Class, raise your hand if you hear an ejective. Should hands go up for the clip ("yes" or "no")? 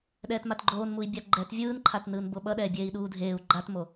no